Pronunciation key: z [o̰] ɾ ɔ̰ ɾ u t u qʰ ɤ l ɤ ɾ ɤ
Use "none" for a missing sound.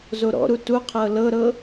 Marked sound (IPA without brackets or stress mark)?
o